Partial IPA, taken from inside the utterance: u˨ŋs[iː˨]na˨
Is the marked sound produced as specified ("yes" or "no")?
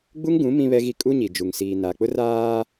yes